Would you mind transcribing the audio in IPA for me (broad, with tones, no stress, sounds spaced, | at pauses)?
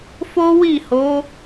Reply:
f o˦ w i˦˨ h o˨˦